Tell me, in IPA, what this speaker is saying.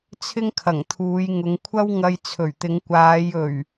t͡sʰ ɪ˥ ŋ kʰ ɐ˨˩ ŋ t̪ʰ uː˨˧ j ŋ ʊ˨˧ ŋ kʷʰ ɐ˥ w ŋ ɐ˧ j t͡sʰ ɵ˨˩ ɥ t̪ ɪ˨˧ ŋ kʷ aː˨˧ j ɵ˨˩ ɥ

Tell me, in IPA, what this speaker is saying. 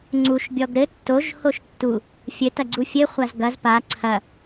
ŋ͡ǀ u ʃ bʲ ɔ ɡ ɾ ɘ tː o ʒ h o ʃ tː u | fʲ ɘ t ɐ ɡ͡ǀ u fʲ ɘ χʷ a z ɡ ɐ z p a ǀʰ ɐ

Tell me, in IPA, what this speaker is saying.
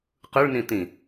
q ɯ ɭ n ĩ t̪ ĩ

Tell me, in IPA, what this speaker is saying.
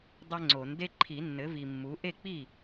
dˤ ɛ˦ ŋ͡ǀ o˨˩˦ n d e˦ ǃʰ i˨˩˦ nː ɘ˩˥ v i˨ mː u˩˥ ʔ e˥˩ k͡p i˥˩

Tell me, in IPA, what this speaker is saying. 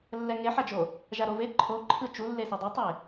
lː ɛ ŋ e ħ a d͡ʒ o | ʒ a ɾ o v e ǃʰ o ǃʰ ɯ t͡ʃ u lː e s e dˤ e tˤ e

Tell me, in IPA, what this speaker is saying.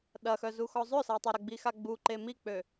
ɗ ɐ x œ z u x ɔ zˤ ʏ s a tˤ ɐ ɾ ə ɡ͡b i x a ɡ͡b u ǃ e m i k͡p ø

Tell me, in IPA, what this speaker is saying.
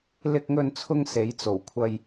l ɪ˧ k̚ ŋ ɵ˧ n t͡sʰ ʊ˧ ŋ s e˨˧ j t͡s o˨˩ w kʷʰ ɐ˧ j

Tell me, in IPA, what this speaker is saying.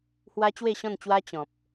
h w a˦ t͡ɕ w e˥˧ ɕ ɔ̃˥˧ n t͡ɕ w a˦ t͡ɕ ɔ̃˨ p̚

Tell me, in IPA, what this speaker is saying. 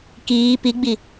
k iː p i ɡ͡b i

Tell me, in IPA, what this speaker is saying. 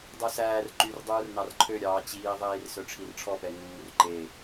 dˤ œ s æː r ǃ y r dˤ uː r n ɑ r ǃʰ ø ɾʲ ɑː t͡ɕ iː ðˤ iː r s œ ʈ͡ʂʰ i r ʈ͡ʂʰ ɔ p ɛ ŋ uː r ǃ e

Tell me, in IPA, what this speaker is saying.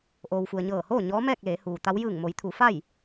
ʔ oː˩ w f u˩ ə̯ ɲ ɤː˧˩ h oː˥˨ ɲ ɔː˧˥ m ɛː˥˨ k̚ l eː˩˧ h uː˩ t̪ a˧˥ w j ɯː˧˩ ŋ m o˩˧ j t̪ʰ u˩˧ f a˥˨ j

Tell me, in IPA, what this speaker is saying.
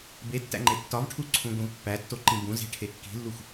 b e tː æ̰ ŋ͡ǃ e tː ɒ v ʈʰ u ǀʰ ũ ɡʷ ĩ v pː æ tː o ǃ ĩ b ũ z e̤ ʈʰ e kː i̤ lː u xʷ

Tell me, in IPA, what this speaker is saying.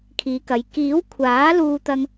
kʰ iː˨˧ k ɐ˨˧ j k iː˨˥ w kʷʰ aː˨˥ l uː˥ t̪ ɐ˥ ŋ

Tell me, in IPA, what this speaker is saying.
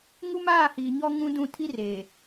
ŋ u˦ m aː˦˨ h iː˨ ɲ ɔ˦ ŋ ũ˦ d ũ˦˨ tʰ i˦ r eː˨

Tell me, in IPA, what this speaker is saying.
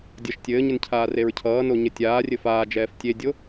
dʲ ʌ ʃ tʲ ɘː ɲ ɘ n cʰ aː r e ɹ cʰ ʌː n o ɲ ɘ tʲ aː rʲ ɘ f aː d͡ʒ ɛː f tʲ e dʲ o

